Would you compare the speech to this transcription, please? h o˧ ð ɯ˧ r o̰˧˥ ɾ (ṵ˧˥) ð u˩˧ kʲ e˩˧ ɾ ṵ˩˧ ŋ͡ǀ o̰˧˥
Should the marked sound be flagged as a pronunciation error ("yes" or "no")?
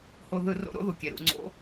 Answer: yes